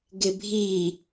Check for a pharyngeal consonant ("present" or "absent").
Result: absent